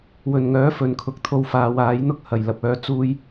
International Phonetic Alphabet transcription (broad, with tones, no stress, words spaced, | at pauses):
wɵ˨nŋœː˨˥fɵ˨nkʰʊ˨˥k̚ t̪ʰo˧wfaː˨˧waː˨˥j n̪ʊ˥k̚ hɐ˨jlɐ˨p̚œː˧ t͡suː˧j